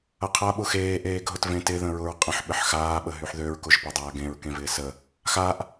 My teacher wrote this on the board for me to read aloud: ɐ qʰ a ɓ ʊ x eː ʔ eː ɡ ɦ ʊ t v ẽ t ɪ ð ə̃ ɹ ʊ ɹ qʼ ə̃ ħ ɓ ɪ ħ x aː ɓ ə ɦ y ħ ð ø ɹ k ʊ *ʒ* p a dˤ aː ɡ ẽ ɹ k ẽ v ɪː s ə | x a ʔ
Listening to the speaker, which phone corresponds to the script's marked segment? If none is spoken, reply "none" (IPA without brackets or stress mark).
ʒ